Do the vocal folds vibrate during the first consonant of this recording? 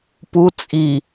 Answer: no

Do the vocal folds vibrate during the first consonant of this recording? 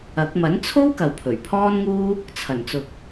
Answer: no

